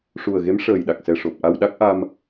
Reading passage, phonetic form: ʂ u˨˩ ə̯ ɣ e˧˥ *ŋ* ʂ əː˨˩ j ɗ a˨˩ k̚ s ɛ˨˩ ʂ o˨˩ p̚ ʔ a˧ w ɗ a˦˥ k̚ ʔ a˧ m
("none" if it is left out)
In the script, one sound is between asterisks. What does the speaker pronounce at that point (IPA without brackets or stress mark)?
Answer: m